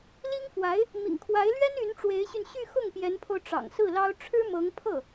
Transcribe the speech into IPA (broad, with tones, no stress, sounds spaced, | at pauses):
l i˥ ŋ f w a˧˥ ɪ̯ | m ḭ˨˩ ŋ kʰ w a˧˥ ɪ̯ l ɥ ɛ˥ n y˧˥ n ʈ͡ʂ w e˧˥ ɪ̯ ɕ y˧ n ɕ y˥˧ x ʊ˥˩ ŋ p j ɛ˧˥ n pʰ o˧ ʊ̯ ʈ͡ʂ ɑ̰˨˩ ŋ s ɹ̩˥˩ l ɑ˥ ʊ̯ ʈ͡ʂʰ ɻ̩˥ m ɤ˧˥ ŋ pʰ ɤ˥˩